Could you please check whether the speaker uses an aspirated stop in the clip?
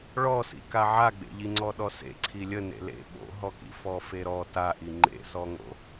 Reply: yes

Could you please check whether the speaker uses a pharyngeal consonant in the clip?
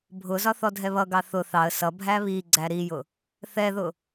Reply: no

